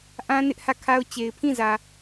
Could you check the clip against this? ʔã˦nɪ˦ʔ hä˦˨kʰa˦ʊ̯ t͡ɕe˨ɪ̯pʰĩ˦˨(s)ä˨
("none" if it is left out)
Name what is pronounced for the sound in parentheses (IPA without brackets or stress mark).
z